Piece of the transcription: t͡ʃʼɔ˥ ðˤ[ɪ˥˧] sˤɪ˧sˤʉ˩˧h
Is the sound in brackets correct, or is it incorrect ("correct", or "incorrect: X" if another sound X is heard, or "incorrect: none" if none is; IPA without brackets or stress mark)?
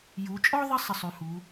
incorrect: ɪ˥